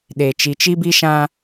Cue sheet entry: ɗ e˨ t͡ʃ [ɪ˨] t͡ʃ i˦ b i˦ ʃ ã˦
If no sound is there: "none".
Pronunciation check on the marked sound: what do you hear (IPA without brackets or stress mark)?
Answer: i˨